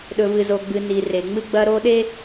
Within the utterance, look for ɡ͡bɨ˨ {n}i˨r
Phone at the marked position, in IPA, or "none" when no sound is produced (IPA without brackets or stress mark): n